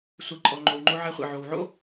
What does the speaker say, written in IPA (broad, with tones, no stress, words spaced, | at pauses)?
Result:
sʷe˨ǃʼɔ˨ŋ͡ǃo˨w ŋ͡ǃo˦ʕɛ˦χʷḭ˨ʕo˨w ʕo̰˦